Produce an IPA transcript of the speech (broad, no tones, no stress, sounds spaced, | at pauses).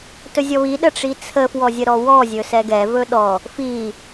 t ɵ zʲ ɔ β i ɗ ə ʈ͡ʂ i t͡sʰ ə f w ɔ zʲ ə ɾ ɔ w ɔ zʲ ɵ s ɛ ɡ ɛ v ɵ ɗ ɔ | f i